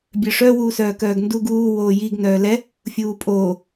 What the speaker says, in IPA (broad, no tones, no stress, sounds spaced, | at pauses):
bʲ œ ʂ œ w uː s œː k œː ɡ n d u ɡ uː w oː j i ɡ n œː l ɛ | fʲ uː pʼ oː